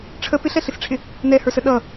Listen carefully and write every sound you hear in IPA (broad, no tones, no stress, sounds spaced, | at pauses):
ʈ͡ʂʰ ə p ɪ ɬ ɛ ɬ ɪ s ʈ͡ʂʰ ɪ | n ɛ h ə˞ s ə ɗ ʌ